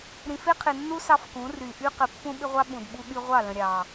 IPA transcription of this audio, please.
ɾ ĩ˨ f e˦ qʰ ɪ˨ nː u˦ s ɑ˦ f k ũ˨˦ r y˨ ʔ y˦ q ɘ˨ pː ũ˦ ɓ ɪ˦ ʁʷ ɑ˦ ɓ ũ˨ d ɓ u˦ ɠ y˦ ʁʷ ɑ˦˨ l ə̃˨ ɾʲ ɑ˨

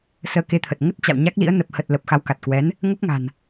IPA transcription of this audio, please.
s əː˧ k e˧ t̪ʰ ə˨˩ t̚ ŋ ə˦˥ t̚ t͡ɕ a̰˧˨ w ɲ a˦˥ k̚ l ḭ˧˥ ə̯ n ə˨˩ p̚ h ə˨˩ t̚ l ə˨˩ p̚ x a˨˦ w k a˨˩ t̚ k w ɛ˨˦ n | ŋ ə˦˥ p̚ ŋ a̤˨˩ n

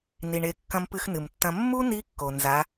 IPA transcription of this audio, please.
n i˩ ɳ e˩˧ kː ɐ̃˧ m p ɨ˧ x n ɨ˩ m tː ɐ̃˧ mː u˥ n i˧˥ kː o˩ n z a˩˧

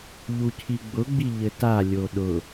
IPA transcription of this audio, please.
ʎ u cʰ i ɡ͡b ʊ ɡ͡b i ʎ ɘ t a lʲ o ɗ ʊ

